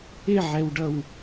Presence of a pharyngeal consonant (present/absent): present